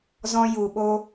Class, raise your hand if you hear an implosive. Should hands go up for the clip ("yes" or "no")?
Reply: yes